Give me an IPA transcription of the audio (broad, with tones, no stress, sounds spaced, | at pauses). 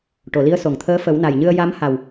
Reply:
ʈ o˨˩˨ l i˧˥ ə̯ s o˨˩ ŋ t̪ʰ əː˧˥ f ə˨˩˦ w n a˨˩ j ɲ ɨ˧ ə̯ j a˧˥ m h a˨˩ w